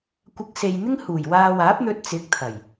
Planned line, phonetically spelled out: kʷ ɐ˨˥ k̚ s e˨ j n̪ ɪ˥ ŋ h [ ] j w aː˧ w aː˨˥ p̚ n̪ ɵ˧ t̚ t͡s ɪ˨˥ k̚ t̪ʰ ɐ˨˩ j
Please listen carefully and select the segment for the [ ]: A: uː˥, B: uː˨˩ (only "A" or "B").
B